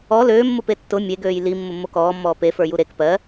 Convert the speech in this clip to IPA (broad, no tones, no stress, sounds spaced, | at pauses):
ɔ l øː mː ʊ p e tː ʊ mʲ e ɡ øː j l i mː ʊ mː o k ɔː mː ɔː p e f ə˞ j u ɾ e k p ɜ